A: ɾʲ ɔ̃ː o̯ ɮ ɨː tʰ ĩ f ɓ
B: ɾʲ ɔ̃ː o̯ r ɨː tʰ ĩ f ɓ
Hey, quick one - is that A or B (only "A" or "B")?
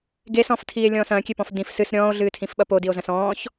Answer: A